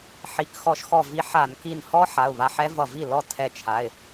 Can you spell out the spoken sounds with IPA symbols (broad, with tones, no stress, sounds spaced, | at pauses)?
ħ i˩˧˩ k x ɔ˧˩˧ ʃ x ɔ˧˩ v i˧ ħ a˧˩˧ n k i˧˩ n h ɔ˦˥ ħ a˩˧˩ ʊ̯ β a˧ ħ ɛ˦˥ v ʌ˧˩ v i˥˩ l ɔ˥˩ tʰ ɛ˧ t͡ʃʰ a˩˧˩ ɪ̯